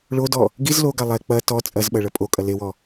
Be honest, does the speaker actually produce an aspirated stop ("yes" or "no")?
no